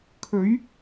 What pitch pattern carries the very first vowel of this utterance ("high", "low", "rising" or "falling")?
rising